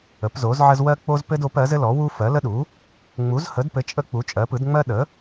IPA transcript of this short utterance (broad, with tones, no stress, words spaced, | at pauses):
ə˩˥pzo˩˥zʕə˦z wɜ˦k͡po˦zpɘ˦d o˩˥p ɜ˩˥zɘ˦lɔ˩˥ wu˦fɜ˩˥lə˦ɗu˩˥ | ŋ͡mu˩˥zhə˩˥dpɘ˩˥ t͡ʃʼə˦ k͡pu˩˥t͡ʃʼɜ˩˥pɯ˩˥dŋ͡mɜ˦ ɗə˩˥